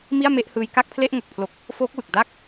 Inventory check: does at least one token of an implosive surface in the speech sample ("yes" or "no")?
no